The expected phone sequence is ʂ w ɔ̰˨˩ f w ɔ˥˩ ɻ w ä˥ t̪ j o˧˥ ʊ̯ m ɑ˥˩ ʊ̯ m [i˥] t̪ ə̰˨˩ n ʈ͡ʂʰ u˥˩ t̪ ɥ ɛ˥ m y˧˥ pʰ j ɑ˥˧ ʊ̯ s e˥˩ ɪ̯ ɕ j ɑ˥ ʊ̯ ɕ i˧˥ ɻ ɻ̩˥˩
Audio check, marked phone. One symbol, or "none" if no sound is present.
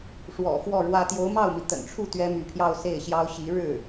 i˩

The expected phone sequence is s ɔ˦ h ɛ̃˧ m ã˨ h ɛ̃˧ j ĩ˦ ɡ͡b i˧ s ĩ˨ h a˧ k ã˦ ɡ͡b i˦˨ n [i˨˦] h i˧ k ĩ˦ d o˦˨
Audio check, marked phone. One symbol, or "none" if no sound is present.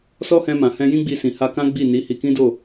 i˨˦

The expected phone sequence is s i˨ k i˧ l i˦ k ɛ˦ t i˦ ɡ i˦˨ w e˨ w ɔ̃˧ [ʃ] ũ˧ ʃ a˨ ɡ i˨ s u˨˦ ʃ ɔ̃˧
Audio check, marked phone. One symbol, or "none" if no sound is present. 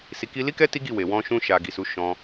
ʃ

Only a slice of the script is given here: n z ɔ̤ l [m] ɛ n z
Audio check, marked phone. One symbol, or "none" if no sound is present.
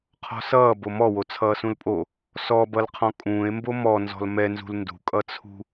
m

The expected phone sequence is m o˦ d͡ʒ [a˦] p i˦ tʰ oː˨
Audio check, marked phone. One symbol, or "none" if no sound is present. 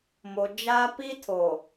aː˦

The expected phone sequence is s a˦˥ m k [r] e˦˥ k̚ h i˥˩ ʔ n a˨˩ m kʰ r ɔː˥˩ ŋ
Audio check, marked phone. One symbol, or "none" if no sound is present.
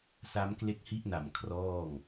l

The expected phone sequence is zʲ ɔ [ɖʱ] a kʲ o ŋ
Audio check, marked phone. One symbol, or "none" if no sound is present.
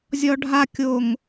ɖʱ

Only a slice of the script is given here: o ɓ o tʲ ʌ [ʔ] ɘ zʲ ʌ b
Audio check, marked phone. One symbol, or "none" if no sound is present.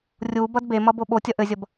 ʔ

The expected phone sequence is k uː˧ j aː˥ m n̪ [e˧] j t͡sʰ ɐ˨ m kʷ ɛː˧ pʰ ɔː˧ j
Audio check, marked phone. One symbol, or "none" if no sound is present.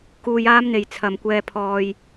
e˨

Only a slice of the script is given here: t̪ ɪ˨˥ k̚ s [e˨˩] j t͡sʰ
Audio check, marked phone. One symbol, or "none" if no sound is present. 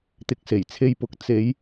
e˨˩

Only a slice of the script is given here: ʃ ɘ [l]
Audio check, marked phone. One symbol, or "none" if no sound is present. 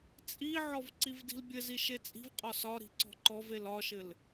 l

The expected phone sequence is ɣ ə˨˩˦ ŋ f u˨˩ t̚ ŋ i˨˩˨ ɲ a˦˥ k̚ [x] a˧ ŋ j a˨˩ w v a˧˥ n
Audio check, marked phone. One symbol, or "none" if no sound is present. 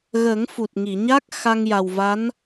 x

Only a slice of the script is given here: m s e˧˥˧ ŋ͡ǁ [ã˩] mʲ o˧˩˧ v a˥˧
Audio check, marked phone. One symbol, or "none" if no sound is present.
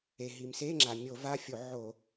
a˩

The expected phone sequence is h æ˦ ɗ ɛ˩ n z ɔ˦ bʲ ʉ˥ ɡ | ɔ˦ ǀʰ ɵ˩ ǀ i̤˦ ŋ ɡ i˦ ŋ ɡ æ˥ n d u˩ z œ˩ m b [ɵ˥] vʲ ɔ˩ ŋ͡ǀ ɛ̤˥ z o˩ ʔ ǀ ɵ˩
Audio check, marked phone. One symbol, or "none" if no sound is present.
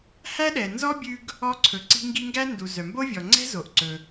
o˥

